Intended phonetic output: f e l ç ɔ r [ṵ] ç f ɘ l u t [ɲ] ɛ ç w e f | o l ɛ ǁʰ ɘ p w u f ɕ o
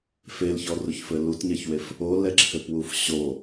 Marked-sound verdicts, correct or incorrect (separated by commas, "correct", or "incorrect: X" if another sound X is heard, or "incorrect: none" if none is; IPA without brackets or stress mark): incorrect: u, correct